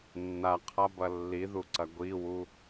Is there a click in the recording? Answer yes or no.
yes